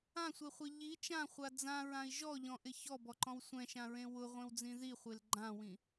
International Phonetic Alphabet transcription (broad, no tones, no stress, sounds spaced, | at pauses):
ã sʷ e χʷ e ʎ i t͡ʃ ã χʷ a d͡z ã ɹ ã i̯ ʒ ɔ ʎ ɔ̃ ʔ ɪ ç ɔ b ɔ ǃ ɔ̃ w sʷ ɛ̃ ʃ ã ɹ ẽ w ʊ ʁʷ ẽ w d͡z ĩ ð i χʷ e l ɡ͡ǃ ã w ĩ